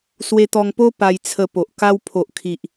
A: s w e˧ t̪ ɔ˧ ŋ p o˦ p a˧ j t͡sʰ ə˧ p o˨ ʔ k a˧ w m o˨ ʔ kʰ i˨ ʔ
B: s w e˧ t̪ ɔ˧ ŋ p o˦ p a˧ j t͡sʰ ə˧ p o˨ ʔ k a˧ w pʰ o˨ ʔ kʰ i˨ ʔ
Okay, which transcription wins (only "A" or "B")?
B